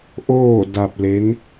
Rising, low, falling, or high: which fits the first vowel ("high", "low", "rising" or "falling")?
falling